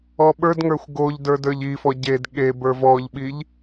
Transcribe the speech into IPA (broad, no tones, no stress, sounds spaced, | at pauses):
ɔ ɓ ə˞ d ŋ ə˞ xʷ ɡ o ʎ d ə˞ d ə˞ ʎ i f ɔ ɟ e d ɠ e b ə˞ v ɔ ʎ ɓ i ʎ